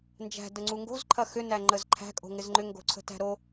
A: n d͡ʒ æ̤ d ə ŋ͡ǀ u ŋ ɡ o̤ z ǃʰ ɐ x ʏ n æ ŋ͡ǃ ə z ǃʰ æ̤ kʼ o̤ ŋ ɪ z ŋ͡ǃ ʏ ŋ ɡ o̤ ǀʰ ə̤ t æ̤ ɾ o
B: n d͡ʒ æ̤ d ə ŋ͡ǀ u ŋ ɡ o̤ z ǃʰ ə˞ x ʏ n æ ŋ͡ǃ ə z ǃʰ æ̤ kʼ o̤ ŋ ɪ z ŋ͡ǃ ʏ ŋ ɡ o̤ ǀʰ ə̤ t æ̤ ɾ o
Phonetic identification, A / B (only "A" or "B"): A